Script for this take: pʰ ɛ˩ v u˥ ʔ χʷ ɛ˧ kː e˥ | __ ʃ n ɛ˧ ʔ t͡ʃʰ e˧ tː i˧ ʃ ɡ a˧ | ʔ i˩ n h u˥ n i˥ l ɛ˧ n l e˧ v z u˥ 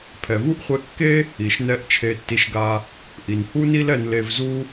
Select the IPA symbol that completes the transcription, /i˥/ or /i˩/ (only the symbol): i˩